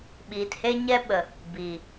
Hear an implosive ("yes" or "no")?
yes